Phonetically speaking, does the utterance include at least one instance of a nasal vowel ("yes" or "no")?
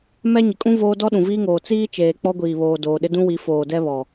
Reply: yes